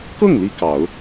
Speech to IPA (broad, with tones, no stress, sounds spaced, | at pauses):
k ɤ˥˩ ŋ l i˥ k ɑ˨˩˦ ʊ̯